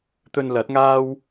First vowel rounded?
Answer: yes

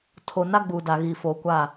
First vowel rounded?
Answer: yes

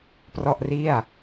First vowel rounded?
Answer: yes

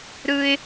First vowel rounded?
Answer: no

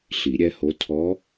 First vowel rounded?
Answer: no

